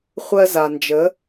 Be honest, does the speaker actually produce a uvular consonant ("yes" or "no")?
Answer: yes